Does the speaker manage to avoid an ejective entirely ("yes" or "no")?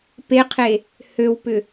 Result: yes